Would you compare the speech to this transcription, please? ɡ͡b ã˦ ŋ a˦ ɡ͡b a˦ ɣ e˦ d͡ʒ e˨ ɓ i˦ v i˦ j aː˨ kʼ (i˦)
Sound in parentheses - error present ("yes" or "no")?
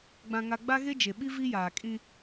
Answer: yes